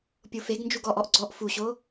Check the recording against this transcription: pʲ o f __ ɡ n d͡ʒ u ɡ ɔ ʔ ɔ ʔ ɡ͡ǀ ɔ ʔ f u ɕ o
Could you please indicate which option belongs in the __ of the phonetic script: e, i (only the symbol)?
e